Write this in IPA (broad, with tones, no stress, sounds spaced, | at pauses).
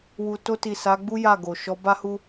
w u˨ t o˧ t i˨ s a˨˦ ɡ͡b u˦ j a˦˨ ɡ o˨ ʃ ɔ˨˦ b a˦ h u˦